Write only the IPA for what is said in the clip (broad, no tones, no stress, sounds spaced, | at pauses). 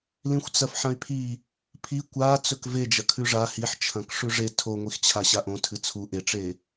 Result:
l ĩ xʷ t͡s ɐ f ħ ɐ̃ y̯ pʰ i | pʰ i kʷ a t͡s ɵ k v e d͡ʒ ɐ kʰ ʉ ʐ a h i ħ t͡ʃʰ ɐ̃ k ʂ ʉ ʐ e tʰ o ŋʷ i x t͡ɕʰ a ɕ a ʔ õ tʰ ɨ t͡sʰ u ʔ e ʈ͡ʂ e